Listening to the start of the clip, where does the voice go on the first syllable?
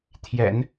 low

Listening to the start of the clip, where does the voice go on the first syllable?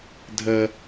high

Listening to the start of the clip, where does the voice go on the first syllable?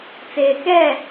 low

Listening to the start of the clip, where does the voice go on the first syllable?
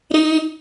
high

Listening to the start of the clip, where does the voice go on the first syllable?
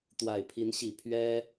low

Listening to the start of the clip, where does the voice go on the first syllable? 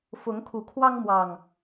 rising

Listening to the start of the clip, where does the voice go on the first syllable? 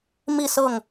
falling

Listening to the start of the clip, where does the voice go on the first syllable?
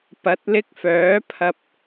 rising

